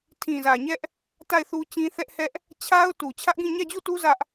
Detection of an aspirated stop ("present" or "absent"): present